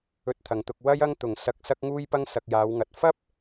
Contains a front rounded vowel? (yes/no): no